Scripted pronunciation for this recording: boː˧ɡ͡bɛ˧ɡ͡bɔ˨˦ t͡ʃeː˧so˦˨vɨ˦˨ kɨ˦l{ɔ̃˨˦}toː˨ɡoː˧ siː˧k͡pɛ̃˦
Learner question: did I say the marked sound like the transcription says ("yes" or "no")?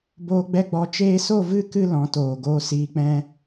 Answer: yes